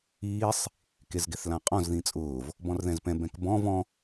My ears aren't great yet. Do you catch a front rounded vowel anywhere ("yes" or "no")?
no